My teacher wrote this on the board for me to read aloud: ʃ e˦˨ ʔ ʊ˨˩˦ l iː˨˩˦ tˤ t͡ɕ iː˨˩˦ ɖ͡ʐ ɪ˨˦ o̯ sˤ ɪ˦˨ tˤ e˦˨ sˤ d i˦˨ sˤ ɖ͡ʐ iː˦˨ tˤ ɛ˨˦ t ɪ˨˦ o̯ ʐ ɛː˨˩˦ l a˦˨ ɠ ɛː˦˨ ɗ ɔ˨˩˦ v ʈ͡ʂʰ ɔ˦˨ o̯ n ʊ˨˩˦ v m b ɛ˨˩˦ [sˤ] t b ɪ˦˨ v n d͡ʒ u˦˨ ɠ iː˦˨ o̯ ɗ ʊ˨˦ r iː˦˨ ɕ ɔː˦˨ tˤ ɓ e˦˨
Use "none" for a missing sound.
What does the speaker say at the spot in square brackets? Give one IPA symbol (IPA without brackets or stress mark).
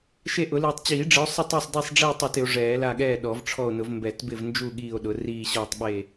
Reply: none